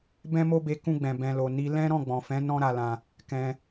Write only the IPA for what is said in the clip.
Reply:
bɛ̃˦mo˦be˧ kũ˧ɡ͡bɛ̃˨ bɛ̃˨lo˨ ni˧lɛ̃˦ ɾɔ̃˦˨ɡ͡bɔ̃˨fɛ̃˨˦ nɔ̃˦ɾa˧lã˧ | kɛ̃˧

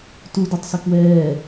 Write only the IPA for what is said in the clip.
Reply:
tudɑtˤsʊ kwɛː

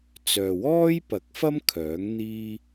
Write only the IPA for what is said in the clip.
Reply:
t͡sœː˨wɔː˥j pɐ˨˥k̚fɐ˥m kʰœː˨˥ŋ n̪iː˥

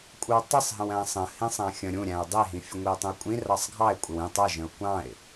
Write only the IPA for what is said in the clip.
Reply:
kʷʼə˞wtˤɪsˤɦə̃wæ̃ sˤə̃hĩsˤæ̃ xʲə̃ ɾʲũɾʲæ̃ʊ̯ dˤiɦĩ fʲəŋʷiʊ̯tˤũə̯kʷʼĩ rɑsˤɡʱɑɪ̯kʷʼɪw ĩ tˤʌʒə̃ʊ̯ kʷɑ̃ɪ̯

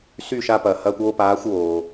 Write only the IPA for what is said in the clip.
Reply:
sy˦˨ ʃa˦pɐː˩hɐː˦kʷ oː˦paː˨˦xʷwoː˩

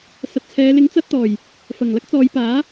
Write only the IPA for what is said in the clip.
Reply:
sɐ˨˥t̚t͡sʰɛː˨˧ lɪ˨˥ŋt͡sɐ˧t̚t̪ɔː˨˩j | fɐ˨˩ŋlɐ˥k̚t͡sɔː˨˧jpaː˨˥

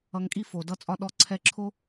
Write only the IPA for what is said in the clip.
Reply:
ʌ˧ŋkʼi˦ fo˨dʌ˧t͡sʼɒ˧ ɗɔ˧ǀʰɛ˧ǁʰo˦

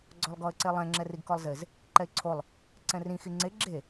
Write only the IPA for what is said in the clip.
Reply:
ɡ͡ǀɔlˠɡɔə̯ǀelˠɛ̃ ŋ͡ǁɛriɡkɔlˠzɪz | ǃɛɪ̯ǀʰolˠ | ǀɛ̃rĩ xiŋ͡ǀe ɡ͡ǁe

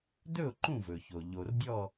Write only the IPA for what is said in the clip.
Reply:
dɵ˥˨ʊ̯ ǃũ˥˨vɵ˩ço˩ ʎo˩rdʲɔ˥˨

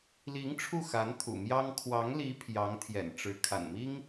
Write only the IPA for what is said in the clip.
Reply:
li˧˥ŋ ʈ͡ʂʰu˥˩xa˧˥n t̪ʰṵ˨˩mjɑ˥ŋ kʰwɑ˧˥ŋli˧˥ pʰjɑ˧˥ŋ t̪ʰjɛ̰˨˩nʈ͡ʂɻ̩˧˥ kʰa̰˨˩nmi˥ŋ

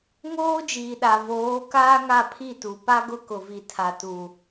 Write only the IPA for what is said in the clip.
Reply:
ŋoː˦d͡ʒiː˨ɗa˨ voː˨˦ kaː˦ŋa˦˨ pʰi˦˨tu˨pa˦ɡʊ˦ kʊ˨vi˨ tʰa˨tu˨

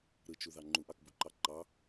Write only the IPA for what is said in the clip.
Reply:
ɾɯt͡ʃuðɑ ŋ͡ǃuʔɑkbuǃɑ ǃɑ

